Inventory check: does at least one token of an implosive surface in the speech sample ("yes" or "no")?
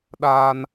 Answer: yes